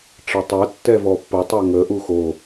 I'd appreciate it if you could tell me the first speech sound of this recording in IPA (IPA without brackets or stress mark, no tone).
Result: ʈ͡ʂ